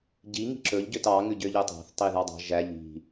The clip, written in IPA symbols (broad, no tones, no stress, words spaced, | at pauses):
ɟi ŋi̤ǁɵʎ ɟøtɑ ŋʉɟøʎɵtˤɑ̤θ tˤiðɑdˤɑ̤ ʒæʎ i̤